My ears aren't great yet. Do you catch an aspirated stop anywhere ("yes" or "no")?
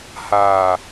no